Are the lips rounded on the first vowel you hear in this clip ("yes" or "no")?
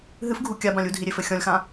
no